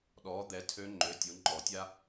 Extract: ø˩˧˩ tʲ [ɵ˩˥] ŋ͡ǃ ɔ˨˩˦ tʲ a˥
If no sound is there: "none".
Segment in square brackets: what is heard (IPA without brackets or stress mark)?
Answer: o˩˥